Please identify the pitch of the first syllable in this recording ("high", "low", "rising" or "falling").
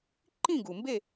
falling